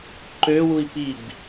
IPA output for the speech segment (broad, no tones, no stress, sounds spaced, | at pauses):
ǃ ø w u i̯ p i b